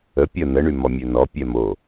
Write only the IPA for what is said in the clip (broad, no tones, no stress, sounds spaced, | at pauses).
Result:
ə pʲ ə n ə ɳ y m ɔ mʲ ø n ɔ pʲ ɛ m o